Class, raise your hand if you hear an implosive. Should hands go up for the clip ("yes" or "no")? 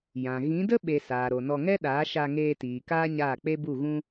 yes